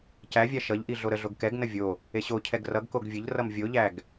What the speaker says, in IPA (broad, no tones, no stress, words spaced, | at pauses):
cævʲa ʃʌʎʔi ɮoɾəɮoɡ kɛɡnə vʲo | eɕocʰɛɡ rʌɡkoɡ vʲəʎrʌm vʲoʎæɡ